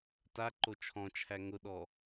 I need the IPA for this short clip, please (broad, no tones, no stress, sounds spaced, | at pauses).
t a ǃ o t͡ʃʰ ɔ̃ t͡ʃʰ æ ŋ ʊ ɗ ɔ